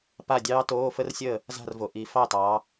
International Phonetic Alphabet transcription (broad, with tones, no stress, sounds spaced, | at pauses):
p a˥˩ dʲ ɑː˦˥ t oː˧˥˧ f ə˦˥ r sʲ əː˥˩ | z a̤˥˩ r v o˨˩ ʔ i˨˦ f ɑ˥˩ t ɑː˨˦